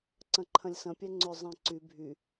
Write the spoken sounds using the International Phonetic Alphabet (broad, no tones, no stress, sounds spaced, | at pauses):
ǀ ɐ̃ ǃʰ ɐ̃ lʲ s ɐ̃ pʲ ɛ ŋ͡ǀ ʏ zˤ ɛ̃ ǀ y bʱ y